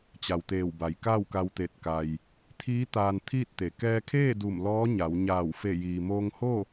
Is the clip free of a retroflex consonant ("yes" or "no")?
yes